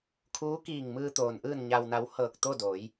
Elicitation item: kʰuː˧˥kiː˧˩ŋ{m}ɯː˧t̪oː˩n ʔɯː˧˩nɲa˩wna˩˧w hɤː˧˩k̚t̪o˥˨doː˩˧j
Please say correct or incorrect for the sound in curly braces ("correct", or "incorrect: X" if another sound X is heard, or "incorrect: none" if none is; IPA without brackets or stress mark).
correct